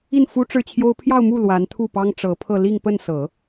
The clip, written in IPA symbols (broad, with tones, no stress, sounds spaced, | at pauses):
i˥˩ n f u˥ ʈ͡ʂ ɻ̩˥˩ t͡ɕʰ j o˥ ʊ̯ pʰ j ɑ˥˧ ʊ̯ m u˥˩ l w a˧˥ n t̪ʰ u˥˩ p ɑ˥ ŋ ʈ͡ʂ ɤ˧˥ pʰ ɤ˥˧ l i˥˧ ŋ p ə˥˩ n s ɤ˨˩˦